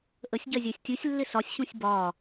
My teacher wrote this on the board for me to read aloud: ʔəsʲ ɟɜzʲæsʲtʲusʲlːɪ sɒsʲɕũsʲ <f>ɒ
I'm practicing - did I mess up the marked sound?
yes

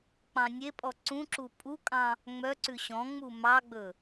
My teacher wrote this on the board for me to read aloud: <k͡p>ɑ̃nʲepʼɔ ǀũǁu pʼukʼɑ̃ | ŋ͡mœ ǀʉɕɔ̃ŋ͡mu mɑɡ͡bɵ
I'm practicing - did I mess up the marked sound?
no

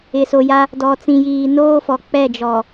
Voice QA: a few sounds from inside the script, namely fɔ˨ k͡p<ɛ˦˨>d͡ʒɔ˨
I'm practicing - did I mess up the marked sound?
no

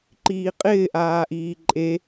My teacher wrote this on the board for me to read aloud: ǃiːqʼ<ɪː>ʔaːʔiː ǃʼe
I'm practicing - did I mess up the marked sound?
no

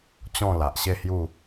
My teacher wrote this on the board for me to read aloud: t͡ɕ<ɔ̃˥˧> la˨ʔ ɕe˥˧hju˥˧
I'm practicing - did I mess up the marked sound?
no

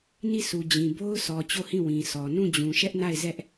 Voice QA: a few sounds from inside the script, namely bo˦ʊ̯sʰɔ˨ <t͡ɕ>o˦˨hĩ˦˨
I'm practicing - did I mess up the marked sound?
no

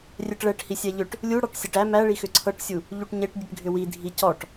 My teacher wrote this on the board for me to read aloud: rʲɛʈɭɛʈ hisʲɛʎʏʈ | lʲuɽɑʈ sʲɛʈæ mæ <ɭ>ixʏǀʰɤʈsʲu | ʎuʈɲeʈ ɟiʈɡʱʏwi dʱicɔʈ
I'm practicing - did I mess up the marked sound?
no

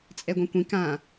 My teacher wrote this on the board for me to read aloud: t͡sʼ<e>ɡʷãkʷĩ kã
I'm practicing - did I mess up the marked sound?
yes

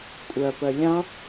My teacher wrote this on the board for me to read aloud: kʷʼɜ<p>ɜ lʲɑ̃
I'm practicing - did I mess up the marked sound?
no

